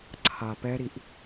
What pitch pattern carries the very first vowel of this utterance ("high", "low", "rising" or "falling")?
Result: low